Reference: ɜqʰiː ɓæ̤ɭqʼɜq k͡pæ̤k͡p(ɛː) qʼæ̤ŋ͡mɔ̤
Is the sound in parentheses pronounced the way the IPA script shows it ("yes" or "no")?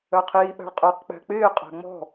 no